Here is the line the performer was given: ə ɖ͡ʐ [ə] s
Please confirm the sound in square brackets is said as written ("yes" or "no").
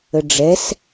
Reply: no